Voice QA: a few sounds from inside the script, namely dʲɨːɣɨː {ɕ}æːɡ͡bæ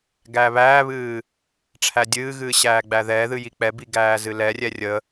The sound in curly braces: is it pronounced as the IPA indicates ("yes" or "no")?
yes